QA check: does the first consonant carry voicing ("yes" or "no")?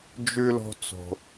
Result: yes